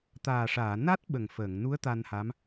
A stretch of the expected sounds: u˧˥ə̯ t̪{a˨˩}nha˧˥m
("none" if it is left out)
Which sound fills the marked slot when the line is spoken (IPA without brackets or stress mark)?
a˧